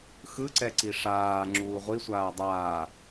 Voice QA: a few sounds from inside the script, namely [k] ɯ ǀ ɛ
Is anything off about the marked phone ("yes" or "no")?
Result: yes